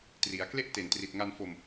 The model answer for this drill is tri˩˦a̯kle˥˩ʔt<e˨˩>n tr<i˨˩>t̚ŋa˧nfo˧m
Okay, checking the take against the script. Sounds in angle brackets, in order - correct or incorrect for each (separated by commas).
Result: correct, correct